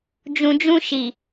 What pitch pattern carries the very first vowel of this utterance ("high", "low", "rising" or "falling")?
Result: low